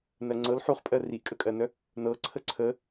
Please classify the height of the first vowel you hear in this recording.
mid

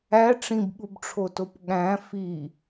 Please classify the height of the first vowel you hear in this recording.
low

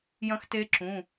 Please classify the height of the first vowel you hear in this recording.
low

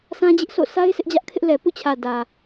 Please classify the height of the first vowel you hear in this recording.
low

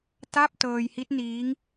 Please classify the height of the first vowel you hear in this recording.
low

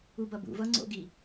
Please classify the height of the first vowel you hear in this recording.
high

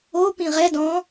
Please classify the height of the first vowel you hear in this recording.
mid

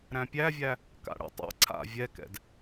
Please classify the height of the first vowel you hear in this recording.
low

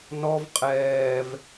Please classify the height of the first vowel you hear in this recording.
mid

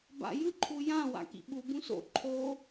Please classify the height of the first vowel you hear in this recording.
low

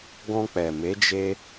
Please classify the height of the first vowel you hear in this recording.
mid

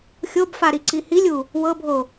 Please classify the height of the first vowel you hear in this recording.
mid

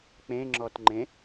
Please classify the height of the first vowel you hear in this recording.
mid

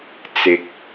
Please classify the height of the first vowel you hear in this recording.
high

